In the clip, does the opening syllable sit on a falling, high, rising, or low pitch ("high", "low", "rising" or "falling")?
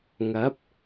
rising